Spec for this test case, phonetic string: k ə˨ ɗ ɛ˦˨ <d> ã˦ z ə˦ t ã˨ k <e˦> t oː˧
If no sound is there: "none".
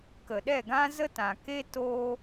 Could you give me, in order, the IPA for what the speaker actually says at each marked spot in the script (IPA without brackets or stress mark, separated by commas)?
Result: ɡ, e˦